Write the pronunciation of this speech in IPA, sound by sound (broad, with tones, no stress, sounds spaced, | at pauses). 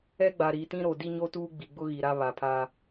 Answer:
ɛ˦ ɡ͡b a˨ ɾ i˨ t ĩ˦ ɾ o˨ d i˦ ɲ o˦ t uː˦ ɡ͡b i˨ ɡ͡b ʊ˦ ɣ i˨ ɾ a˦ β a˨ pʰ a˦